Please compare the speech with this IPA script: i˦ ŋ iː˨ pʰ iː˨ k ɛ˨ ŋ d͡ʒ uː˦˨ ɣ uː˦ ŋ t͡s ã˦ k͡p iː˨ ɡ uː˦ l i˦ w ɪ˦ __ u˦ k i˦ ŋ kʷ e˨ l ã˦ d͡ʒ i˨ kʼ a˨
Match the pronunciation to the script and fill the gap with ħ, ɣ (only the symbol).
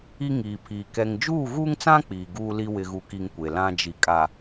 ɣ